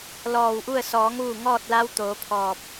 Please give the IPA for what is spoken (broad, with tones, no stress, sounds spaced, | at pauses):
l ɔː˧˩ w ʔ u˥˨ ə̯ s ɔː˩˧ ŋ ʋ u˧˩ ŋ ɔː˥˨ t̚ l a˧˥ w t̪ oː˩˧ pʰ ɔː˧˩ p̚